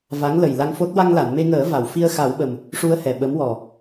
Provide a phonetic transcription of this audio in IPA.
v a˧˥ ŋ l ə˨˩ j l a˧ ŋ f o˦˥ t̚ w a˧ ŋ l a˨˩˨ n m e˧ ŋ əː˨˩˦ v a˨˩˨ w f i˧ ə̯ x a˨˩˦ w ɓ ə˨˩ m | ʂ u˧ ə̯ h ɛ˨˩ ɓ ə˧˥ m w ɔ˨˩

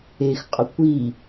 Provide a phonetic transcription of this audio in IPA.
e x qʼ ʊ kʷ i

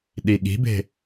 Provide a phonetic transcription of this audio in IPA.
ɗ i ɠ i̤ b e̤

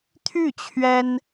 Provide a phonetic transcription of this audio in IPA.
t̪ʰ y˥˩ t͡ɕʰ ɥ ɛ˥ n

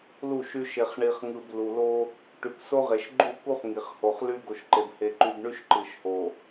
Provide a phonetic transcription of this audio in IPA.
l u˦˨ ʃ y˦ ʃ e˨ χ ɳ i˨ χ ŋ ɯ˨ b l u˨ l o˦ | ʈ y˨ k s o˦ ʁ e˨ ʃ ɡ͡ǃ u˦˨ k u˦ χ ŋ i˨ χ h o˨ χ l y˦ ɡ o˨ ʃ ǃ e˨ b h e˨ ǃ y˨ b ɳ y˦ ʃ ǃ ɯ˨ ʃ h o˨

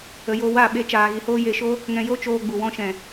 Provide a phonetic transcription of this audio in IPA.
ə˧ j o˧ w a˦˨ ɓ e˦ t͡ʃ aː˧ ɣ i˧ h oː˦ j e˧ ʃ o˦ | ŋ ɛ̃˧ j o˦ t͡ʃ oː˧ ɡ͡b u˨ w ɔ̃˧ ʃ ɛ̃˨

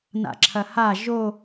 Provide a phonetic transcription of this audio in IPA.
n a̰ ǁʰ ɐ h a ʒ o

